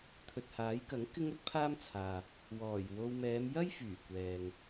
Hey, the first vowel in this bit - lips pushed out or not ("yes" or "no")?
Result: yes